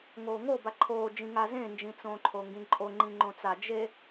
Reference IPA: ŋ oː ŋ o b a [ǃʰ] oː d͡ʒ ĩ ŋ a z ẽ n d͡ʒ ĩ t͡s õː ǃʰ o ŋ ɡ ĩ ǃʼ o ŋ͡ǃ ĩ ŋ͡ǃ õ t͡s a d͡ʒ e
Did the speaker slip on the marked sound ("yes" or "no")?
no